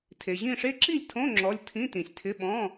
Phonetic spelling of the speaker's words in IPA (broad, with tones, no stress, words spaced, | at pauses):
tʰe˨ʑĩ˥˨ʂe˥ ǁi˥˨lʲtʰõ˧˥˧ ŋ͡ǁɔ˧˥˧lʲ tʰĩ˧˥˧tĩ˨sʲtʰɪ˧˥˧ɓɔ̃˧˥˧